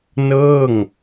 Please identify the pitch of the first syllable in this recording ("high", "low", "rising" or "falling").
falling